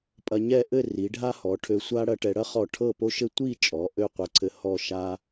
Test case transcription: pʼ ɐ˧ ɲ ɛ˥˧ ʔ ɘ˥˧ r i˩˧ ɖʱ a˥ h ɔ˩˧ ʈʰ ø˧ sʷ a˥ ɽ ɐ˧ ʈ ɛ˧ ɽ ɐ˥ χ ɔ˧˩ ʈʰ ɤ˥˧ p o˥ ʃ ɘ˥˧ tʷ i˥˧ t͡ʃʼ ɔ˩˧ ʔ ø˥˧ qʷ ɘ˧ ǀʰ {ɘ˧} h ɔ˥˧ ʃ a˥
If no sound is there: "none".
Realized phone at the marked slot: ɘ˧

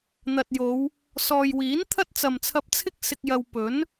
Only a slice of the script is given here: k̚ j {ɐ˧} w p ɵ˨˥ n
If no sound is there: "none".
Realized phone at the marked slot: ɐ˧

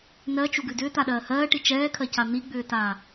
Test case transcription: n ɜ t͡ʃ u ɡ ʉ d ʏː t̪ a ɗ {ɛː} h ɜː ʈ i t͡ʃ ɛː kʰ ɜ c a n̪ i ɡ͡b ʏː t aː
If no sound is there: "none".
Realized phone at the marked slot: ɜː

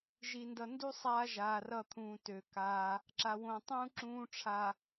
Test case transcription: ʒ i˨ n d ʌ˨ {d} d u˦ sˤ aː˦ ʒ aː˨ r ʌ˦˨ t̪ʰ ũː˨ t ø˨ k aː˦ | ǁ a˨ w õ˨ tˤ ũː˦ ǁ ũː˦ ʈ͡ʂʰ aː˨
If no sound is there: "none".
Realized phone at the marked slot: n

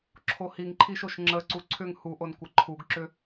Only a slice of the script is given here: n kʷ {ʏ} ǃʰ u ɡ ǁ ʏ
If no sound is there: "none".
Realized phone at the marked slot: ə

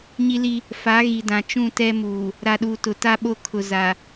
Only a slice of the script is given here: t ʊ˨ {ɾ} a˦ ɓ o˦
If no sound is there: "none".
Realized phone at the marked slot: t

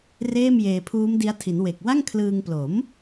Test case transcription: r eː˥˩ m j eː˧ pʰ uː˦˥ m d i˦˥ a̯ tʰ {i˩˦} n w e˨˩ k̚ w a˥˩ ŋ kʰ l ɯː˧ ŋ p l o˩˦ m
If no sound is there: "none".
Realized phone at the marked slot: i˩˦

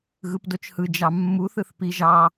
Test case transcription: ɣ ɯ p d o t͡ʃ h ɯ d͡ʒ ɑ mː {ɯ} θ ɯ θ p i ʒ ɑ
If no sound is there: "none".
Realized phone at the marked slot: u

